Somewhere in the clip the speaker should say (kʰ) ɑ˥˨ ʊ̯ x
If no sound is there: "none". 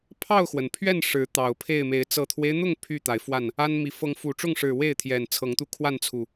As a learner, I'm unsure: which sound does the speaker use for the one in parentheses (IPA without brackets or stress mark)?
pʰ